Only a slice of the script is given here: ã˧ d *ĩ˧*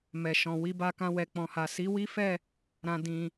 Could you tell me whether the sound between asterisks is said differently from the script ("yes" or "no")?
no